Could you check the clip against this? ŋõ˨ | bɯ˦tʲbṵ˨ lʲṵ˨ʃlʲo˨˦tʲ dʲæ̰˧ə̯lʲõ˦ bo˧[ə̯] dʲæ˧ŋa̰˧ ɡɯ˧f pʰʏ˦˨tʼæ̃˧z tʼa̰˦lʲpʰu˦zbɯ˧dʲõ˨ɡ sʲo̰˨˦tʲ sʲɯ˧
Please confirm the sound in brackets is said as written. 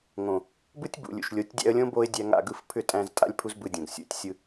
no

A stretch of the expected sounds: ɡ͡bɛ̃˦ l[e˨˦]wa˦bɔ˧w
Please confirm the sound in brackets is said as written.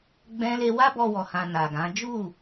no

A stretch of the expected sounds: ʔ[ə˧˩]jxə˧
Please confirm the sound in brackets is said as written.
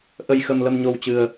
no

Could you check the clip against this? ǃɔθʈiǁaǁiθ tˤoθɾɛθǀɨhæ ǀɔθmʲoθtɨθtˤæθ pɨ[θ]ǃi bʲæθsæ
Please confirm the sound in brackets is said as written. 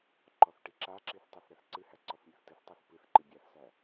yes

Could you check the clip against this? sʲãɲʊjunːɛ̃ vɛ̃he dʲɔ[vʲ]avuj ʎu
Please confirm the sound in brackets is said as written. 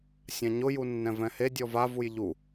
no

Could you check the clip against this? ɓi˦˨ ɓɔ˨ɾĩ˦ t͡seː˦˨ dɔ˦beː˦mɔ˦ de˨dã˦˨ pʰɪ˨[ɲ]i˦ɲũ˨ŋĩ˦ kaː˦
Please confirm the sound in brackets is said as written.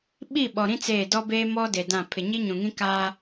yes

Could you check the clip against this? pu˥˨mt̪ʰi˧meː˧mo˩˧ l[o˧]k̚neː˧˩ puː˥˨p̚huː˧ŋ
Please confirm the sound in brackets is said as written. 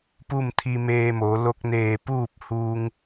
yes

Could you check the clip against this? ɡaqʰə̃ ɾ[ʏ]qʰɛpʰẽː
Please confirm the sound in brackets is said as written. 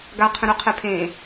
yes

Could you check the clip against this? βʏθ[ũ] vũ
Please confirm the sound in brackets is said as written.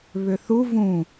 no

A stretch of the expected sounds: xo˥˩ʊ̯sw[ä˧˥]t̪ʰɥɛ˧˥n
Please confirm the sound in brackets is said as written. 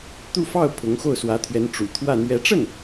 yes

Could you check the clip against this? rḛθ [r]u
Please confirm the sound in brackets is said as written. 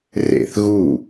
no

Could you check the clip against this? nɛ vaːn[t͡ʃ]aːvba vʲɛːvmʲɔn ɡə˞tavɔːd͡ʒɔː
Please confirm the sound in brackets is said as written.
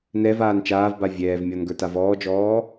yes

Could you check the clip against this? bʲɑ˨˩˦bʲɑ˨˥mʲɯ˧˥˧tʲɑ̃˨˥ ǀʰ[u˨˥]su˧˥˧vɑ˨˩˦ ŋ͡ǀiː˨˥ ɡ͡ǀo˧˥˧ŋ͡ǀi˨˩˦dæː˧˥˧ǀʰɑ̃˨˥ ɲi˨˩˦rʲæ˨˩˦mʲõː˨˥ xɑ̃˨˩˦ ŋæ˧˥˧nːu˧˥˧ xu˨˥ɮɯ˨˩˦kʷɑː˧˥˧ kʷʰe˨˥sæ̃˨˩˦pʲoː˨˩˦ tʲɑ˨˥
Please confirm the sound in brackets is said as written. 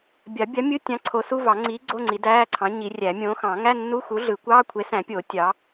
no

